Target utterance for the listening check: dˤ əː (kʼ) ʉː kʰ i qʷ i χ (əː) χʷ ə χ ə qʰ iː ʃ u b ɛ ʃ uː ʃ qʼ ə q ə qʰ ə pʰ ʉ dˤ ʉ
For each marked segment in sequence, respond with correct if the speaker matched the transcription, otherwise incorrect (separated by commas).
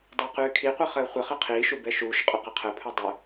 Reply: incorrect, correct